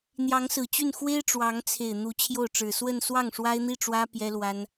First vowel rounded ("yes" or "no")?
no